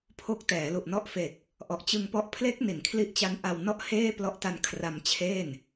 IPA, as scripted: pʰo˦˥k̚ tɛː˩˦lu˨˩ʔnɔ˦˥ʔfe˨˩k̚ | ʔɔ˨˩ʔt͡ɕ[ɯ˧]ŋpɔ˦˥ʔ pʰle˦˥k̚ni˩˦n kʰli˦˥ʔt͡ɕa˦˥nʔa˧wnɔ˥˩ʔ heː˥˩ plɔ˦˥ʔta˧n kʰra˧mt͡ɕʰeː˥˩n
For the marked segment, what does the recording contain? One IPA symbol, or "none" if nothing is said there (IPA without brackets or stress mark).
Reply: ɯ˧